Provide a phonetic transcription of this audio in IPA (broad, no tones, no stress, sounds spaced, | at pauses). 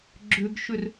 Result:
ɡ͡ǁ ʏ ɡ ʃ ʏ r